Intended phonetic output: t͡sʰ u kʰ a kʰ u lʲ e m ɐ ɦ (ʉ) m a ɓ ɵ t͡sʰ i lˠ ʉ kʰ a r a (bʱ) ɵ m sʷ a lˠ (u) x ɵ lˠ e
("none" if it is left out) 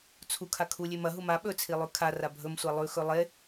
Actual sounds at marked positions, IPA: u, bʱ, ʉ

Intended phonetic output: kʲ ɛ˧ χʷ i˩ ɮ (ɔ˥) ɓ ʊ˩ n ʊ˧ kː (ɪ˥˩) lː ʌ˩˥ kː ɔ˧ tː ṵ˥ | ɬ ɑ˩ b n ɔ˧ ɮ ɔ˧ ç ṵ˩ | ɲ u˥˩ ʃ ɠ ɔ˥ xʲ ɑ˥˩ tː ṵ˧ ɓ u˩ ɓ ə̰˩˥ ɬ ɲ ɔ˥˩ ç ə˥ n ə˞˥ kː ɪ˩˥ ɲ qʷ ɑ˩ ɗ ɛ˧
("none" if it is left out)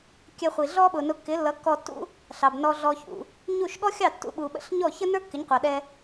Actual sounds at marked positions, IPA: ɔ˥, ɪ˩˥

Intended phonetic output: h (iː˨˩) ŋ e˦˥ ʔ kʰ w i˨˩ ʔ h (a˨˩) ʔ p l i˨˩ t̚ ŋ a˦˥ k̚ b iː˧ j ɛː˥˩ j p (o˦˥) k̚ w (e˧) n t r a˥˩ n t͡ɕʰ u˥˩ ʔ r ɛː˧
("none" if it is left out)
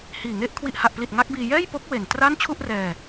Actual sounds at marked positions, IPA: iː˨˩, a˨˩, o˦˥, e˨˩

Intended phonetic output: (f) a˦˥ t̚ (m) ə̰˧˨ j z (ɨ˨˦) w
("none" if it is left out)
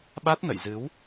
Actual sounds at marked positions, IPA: ɓ, n, ɨ˨˦

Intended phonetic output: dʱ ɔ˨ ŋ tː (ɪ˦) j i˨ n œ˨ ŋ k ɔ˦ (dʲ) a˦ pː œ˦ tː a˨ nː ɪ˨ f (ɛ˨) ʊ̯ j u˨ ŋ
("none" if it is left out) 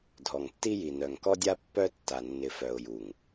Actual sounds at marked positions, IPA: i˦, dʲ, œ˨

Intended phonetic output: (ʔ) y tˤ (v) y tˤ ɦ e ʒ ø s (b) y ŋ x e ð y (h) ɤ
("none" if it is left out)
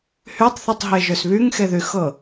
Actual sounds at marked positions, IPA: h, θ, β, x

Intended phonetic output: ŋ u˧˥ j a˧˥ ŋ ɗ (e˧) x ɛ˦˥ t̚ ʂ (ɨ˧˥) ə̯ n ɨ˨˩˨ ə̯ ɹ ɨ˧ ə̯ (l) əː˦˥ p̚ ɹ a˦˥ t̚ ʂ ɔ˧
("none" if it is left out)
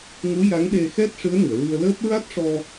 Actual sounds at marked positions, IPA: e˧, ɨ˧˥, l

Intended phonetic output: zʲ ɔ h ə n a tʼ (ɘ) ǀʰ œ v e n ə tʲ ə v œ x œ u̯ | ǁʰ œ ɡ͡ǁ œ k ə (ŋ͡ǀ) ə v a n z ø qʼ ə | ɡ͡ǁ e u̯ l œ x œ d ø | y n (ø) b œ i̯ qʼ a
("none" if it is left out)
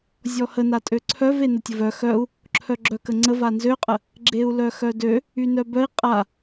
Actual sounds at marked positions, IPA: ø, ŋ͡ǀ, œ

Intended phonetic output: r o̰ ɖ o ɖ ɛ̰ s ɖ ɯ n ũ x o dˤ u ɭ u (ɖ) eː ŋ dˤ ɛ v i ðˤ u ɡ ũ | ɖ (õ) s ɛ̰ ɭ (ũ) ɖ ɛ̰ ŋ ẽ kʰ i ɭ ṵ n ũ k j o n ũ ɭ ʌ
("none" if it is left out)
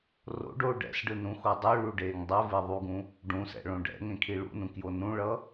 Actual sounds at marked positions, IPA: ɖ, ũ, õ

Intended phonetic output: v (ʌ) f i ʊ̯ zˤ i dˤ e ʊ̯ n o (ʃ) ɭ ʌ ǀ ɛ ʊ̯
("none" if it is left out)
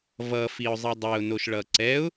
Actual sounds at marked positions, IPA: ʌ, ʃ

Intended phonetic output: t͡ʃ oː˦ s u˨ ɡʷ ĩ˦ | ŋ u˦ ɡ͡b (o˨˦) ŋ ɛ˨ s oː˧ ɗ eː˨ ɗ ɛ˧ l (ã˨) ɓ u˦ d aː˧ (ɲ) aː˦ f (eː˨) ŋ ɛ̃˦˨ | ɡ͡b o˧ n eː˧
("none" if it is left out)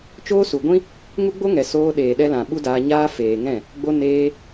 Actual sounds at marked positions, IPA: o˦, ã˨, ɲ, eː˨

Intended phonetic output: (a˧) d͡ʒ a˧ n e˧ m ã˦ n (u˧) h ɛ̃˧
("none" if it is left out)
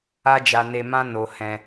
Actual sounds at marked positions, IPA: a˦, o˧

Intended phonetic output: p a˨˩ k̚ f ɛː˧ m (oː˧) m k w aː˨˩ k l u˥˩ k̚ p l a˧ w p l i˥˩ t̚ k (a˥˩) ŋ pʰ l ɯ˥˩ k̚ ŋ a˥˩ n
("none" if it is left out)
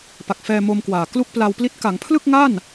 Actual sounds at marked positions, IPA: o˧, a˩˦

